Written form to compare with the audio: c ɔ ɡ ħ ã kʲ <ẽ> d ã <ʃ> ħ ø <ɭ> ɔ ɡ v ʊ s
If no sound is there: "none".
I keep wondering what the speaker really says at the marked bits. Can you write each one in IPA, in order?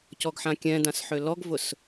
ɛ̃, s, l

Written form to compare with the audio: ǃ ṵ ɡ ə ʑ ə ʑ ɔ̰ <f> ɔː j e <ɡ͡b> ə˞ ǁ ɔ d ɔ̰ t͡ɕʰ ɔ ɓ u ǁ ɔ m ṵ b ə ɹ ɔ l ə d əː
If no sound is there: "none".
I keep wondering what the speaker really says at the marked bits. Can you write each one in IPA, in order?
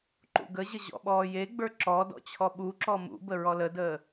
ɓ, ɡ͡b

